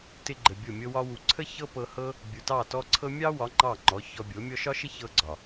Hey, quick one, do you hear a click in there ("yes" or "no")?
yes